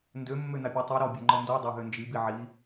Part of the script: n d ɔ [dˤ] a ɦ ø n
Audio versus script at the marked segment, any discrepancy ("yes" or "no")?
no